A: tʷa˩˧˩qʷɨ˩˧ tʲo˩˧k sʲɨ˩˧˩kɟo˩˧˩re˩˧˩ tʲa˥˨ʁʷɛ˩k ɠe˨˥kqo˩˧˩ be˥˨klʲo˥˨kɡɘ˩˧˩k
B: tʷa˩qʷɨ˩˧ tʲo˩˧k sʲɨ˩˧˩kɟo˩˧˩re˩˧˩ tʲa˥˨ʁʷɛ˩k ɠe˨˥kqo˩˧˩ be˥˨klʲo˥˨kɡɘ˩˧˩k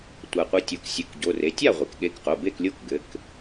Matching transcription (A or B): B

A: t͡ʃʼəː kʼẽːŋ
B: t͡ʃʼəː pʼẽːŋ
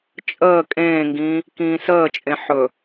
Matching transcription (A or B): A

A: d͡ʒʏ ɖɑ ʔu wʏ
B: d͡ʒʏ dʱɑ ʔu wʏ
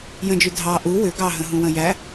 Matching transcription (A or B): B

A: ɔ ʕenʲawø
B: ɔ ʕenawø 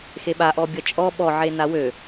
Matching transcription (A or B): B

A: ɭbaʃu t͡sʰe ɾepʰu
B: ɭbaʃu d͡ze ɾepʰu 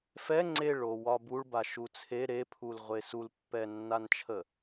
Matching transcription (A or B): A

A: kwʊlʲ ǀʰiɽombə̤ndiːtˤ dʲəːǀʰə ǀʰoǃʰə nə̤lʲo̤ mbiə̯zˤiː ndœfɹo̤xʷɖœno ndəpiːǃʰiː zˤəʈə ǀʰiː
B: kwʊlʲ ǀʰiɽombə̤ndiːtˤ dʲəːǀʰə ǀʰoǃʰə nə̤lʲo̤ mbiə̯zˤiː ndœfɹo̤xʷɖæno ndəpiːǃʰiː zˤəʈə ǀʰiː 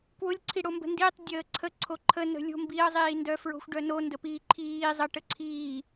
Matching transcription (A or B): A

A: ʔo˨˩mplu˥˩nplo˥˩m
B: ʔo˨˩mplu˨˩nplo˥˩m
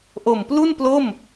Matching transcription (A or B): A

